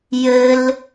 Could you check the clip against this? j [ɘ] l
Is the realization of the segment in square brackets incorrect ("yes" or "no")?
no